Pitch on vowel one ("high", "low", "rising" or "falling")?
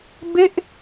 falling